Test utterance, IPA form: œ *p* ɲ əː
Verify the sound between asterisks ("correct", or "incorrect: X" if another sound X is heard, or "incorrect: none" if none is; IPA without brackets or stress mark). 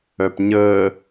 correct